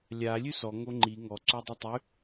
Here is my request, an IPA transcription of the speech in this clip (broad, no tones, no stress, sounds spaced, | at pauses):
lʲ a lʲ ʉ s ɔ ŋ o ŋ͡ǃ i ŋ ɔ ǀ o dˤ y tˤ ʉ